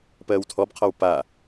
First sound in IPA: p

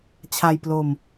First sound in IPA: t͡ɕʰ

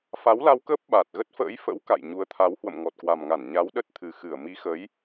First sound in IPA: f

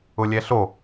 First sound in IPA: ʊ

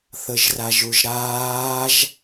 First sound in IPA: θ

